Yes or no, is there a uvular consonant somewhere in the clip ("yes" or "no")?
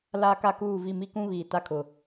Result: no